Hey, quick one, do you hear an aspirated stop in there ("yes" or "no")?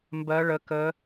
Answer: no